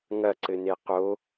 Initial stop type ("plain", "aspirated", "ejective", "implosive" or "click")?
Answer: click